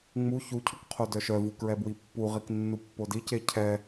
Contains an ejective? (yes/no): no